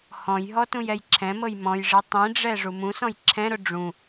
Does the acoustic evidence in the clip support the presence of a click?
yes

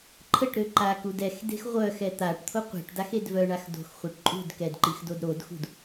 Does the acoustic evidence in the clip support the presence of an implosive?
no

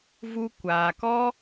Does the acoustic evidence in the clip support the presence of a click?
no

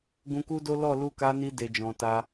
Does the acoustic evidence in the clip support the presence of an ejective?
no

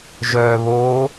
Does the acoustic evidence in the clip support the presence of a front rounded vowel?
yes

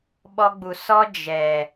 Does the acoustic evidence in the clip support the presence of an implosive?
yes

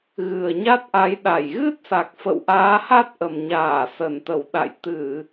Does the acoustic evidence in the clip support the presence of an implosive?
yes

